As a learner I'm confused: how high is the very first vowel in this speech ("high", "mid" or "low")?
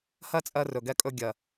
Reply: mid